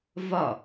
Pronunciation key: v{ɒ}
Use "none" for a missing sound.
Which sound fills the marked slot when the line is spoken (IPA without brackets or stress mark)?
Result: ɒ